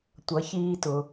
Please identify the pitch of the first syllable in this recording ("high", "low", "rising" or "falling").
rising